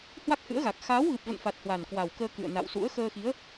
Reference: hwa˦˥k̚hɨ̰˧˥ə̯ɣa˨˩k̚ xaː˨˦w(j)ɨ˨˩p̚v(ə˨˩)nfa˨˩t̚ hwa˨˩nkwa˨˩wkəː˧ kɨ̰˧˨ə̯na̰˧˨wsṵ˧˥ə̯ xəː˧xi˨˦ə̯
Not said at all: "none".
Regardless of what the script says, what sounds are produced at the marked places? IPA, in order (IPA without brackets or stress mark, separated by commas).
ɣ, ə̰˧˨